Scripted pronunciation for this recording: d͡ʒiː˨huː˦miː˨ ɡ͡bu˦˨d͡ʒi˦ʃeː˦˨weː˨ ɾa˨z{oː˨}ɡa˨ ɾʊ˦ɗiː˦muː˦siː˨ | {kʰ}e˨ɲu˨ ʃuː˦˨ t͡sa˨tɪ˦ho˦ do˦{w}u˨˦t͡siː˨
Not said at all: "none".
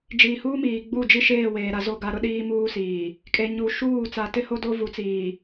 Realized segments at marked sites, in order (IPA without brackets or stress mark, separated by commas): o˨, kʼ, v